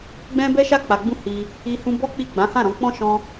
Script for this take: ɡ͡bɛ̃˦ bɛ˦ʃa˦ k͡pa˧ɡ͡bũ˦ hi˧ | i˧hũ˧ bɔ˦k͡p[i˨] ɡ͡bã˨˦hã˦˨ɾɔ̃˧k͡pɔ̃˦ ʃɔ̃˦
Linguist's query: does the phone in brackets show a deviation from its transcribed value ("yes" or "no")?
yes